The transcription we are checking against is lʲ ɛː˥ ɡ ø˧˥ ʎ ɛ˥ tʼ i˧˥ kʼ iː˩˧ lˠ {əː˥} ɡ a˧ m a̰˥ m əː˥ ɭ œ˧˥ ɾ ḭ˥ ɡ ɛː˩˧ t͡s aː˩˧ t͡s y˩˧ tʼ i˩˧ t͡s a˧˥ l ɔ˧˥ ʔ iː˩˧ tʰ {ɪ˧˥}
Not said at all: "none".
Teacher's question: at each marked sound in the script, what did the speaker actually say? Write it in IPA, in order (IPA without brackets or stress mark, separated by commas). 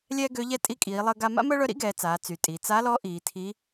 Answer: əː˧, i˧˥